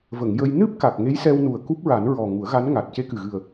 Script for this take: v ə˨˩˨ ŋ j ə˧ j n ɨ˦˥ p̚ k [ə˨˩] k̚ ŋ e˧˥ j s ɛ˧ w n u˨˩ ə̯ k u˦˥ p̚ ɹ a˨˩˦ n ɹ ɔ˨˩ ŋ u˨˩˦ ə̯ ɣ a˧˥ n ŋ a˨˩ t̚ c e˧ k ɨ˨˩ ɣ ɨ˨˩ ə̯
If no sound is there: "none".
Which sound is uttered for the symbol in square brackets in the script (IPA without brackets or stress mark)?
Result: a˨˩